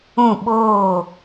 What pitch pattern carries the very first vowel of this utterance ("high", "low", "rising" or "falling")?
falling